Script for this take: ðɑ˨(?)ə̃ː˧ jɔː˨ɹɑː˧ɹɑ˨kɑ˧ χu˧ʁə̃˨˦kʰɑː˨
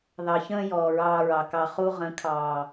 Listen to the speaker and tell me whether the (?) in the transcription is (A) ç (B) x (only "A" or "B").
A